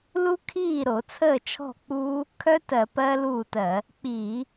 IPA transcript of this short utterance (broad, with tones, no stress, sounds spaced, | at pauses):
l u˦˥ kʰ iː˥˩ ɾ o˧˩˧ t͡sʰ əː˥˩ t͡ʃʰ ɔ̤˥˩ k͡p uː˦˥ | kʰ œ˦˥ t ɜ˧˩˧ p ɜ˦˥ l uː˥˩ t ɜ˧˩˧ | k͡p iː˧˩˧